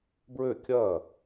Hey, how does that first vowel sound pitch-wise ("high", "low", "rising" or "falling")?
falling